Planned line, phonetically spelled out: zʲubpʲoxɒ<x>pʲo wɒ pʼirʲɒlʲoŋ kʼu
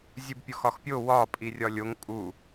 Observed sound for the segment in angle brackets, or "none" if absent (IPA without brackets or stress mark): x